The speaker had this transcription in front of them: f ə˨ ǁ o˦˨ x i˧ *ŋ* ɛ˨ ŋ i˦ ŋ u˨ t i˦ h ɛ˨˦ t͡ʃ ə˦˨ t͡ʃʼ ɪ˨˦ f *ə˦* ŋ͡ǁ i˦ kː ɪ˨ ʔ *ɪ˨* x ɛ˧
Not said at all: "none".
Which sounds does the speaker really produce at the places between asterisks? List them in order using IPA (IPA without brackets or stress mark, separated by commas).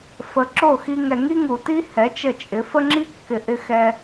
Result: ŋ, ə˦, ɪ˧